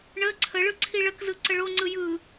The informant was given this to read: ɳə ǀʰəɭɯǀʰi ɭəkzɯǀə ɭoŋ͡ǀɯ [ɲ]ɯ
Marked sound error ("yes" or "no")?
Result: yes